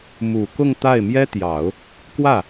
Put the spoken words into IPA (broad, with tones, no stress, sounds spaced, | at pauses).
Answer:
m u˨˩ k ʊ˥˧ ŋ t̪ a˥˩ ɪ̯ m j ɛ˥ t̪ j ɑ˨˩˦ ʊ̯ | k w ä˥˩